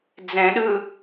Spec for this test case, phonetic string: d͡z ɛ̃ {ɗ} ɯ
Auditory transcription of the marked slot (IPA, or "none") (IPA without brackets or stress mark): ɗ